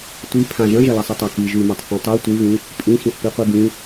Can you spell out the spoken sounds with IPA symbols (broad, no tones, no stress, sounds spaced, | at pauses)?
tʷ i pʰ ã ʒ ɐ̃ ʒ ɐ l ɐ sˤ ɐ tˤ a k i ʒ ʉ m a tˤ θ õ tˤ o tʷ ɨ v ĩ | pʼ ĩ x ĩ θ p i qʷ i b ĩ